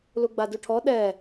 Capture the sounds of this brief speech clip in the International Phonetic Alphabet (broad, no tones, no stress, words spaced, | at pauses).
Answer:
luɡ͡baduʈʰɔ ɗɛ